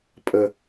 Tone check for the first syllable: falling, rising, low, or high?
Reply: low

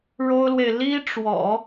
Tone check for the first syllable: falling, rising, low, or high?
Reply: high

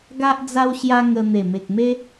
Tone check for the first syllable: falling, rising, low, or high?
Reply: high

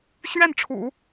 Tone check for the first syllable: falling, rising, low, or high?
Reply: falling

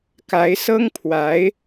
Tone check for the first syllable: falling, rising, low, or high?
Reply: rising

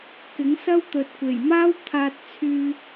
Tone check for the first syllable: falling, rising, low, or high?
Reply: rising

